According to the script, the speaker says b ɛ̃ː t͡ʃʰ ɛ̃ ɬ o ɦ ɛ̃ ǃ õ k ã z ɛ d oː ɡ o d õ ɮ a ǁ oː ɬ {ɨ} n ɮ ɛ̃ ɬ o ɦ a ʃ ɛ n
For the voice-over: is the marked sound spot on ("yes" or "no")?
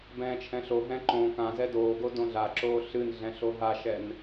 yes